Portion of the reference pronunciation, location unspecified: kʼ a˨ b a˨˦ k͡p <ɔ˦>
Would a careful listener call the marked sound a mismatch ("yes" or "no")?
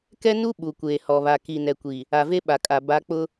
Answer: yes